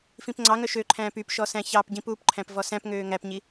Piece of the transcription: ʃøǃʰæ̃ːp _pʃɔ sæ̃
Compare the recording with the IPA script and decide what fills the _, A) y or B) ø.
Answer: A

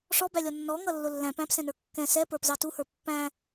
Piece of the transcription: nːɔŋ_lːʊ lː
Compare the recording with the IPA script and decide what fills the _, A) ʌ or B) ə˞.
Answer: A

